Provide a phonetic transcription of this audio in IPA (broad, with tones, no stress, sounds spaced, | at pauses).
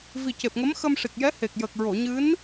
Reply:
v i˨˩ c e˨˩ p̚ ŋ ə˧˥ m x ə˧ m ʂ i˨˩ k̚ j ɛ˧˥ h e˨˩ k̚ j əː˨˩ k̚ ɹ o˨˩˨ ɲ ɨ˧˥ n